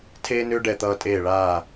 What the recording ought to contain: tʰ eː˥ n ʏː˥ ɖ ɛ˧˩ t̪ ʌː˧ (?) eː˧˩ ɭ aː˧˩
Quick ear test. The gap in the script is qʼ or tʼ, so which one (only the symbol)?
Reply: tʼ